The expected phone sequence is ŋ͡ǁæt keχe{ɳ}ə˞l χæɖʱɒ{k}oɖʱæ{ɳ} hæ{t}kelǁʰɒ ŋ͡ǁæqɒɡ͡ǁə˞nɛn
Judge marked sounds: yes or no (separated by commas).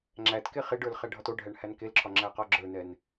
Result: no, no, yes, no